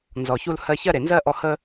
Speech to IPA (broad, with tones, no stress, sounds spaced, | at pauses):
n z ɔ˨ ç u˧ l h ɜ˧ ç ɜ˦ ɾ e˨ n z ɜ˦ ʔ ɔ˧ h ə˦